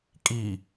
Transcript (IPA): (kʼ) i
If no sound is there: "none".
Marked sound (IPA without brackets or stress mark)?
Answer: kʼ